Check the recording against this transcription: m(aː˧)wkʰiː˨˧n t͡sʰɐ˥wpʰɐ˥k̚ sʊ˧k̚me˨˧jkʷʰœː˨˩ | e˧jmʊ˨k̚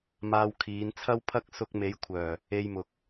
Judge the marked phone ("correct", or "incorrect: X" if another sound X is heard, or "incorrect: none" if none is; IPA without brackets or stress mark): correct